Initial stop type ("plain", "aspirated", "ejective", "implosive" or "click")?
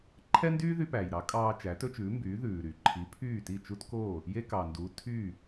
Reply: click